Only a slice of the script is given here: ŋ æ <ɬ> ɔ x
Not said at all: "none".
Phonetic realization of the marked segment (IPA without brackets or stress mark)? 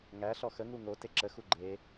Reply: ɬ